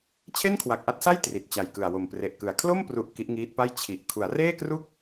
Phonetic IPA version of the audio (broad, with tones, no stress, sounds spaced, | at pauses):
t͡ɕʰ e˥˩ n kʰ w a˨˩ k̚ ʔ a˦˥ t̚ s a˥˩ j t r i˨˩ t̚ t͡ɕ a˨˩ j k ɯ˨˩ a̯ w o˨˩ m p r e˨˩ ʔ k ɯ˨˩ a̯ kʰ l o˥˩ m p r u˨˩ ʔ k i˦˥ ʔ ŋ iː˦˥ t̚ p a˥˩ j t͡ɕʰ i˨˩ ʔ kʰ u˩˦ a̯ r eː˥˩ k r u˥˩ k̚